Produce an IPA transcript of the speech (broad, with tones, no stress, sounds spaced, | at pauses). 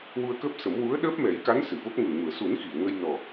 w u˧ ə̯ k əː˦˥ p̚ s ə˨˩˦ m w u˧˥ ə̯ ɗ əː˦˥ p̚ m ɛ˨˩˦ j k a˧˥ n s ɨ˨˩˨ v o˦˥ k̚ ŋ u˨˩ ŋ u˨˩˨ ə̯ s u˨˩˦ n x i˨˩˨ ə̯ ŋ ə˧ j n ɔ˨˩